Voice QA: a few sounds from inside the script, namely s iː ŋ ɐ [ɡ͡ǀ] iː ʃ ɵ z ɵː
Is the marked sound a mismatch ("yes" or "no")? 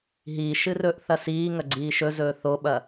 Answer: no